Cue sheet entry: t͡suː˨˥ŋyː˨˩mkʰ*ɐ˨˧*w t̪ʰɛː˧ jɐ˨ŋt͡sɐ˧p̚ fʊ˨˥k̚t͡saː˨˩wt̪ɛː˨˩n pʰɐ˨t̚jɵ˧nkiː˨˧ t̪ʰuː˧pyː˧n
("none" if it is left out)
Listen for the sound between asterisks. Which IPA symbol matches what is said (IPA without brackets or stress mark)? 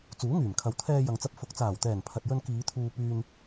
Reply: ɐ˨˧